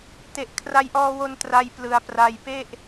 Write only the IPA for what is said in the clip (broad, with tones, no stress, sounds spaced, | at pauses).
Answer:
t e˨˩ ʔ kʰ r a˧ j ʔ ɔː˧ w o˧ n t r a˧ j p l ɯ˩˦ a̯ p r a˧ j p e˥˩ ʔ